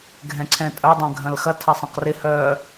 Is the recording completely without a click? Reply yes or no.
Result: no